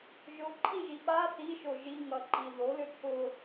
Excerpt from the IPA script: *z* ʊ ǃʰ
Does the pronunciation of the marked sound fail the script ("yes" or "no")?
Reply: yes